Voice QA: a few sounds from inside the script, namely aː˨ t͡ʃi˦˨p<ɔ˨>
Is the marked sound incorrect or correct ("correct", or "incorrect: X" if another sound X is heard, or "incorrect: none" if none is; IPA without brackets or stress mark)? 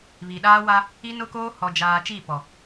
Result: correct